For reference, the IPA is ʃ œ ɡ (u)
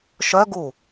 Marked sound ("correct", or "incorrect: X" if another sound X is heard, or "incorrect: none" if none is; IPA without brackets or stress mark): correct